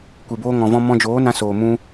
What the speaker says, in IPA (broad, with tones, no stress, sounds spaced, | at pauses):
kʷ e˨ b oː˧ ŋ ɔ̃˨ v ɔ̃˧ m ɔ̃˧ d͡ʒ oː˨˦ n ã˧ s oː˨ m ũ˧